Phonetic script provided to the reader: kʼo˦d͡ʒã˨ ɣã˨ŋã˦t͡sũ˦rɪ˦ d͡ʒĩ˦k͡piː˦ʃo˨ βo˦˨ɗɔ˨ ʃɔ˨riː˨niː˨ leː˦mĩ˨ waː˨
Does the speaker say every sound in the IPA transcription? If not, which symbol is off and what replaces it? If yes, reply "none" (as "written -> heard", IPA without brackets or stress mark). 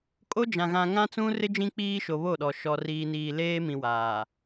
none